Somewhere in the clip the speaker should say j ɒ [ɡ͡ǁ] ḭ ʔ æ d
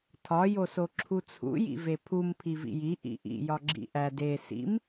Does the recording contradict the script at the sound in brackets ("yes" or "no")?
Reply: no